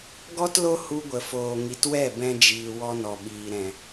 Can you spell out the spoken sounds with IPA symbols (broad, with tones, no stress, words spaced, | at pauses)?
ɡɔ˦tlo˦ hu˧ɡʷə˨foː˨ ŋi˨twɛ˦˨ bɛ̃˧d͡ʒiː˨ wɔ˧nɔ˨ɓiː˨ɾɛ̃˨